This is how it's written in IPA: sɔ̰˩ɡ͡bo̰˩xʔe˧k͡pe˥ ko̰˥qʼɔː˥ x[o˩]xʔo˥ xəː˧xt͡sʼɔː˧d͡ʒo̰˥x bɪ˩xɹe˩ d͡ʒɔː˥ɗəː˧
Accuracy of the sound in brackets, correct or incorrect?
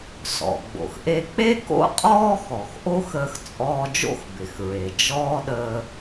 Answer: incorrect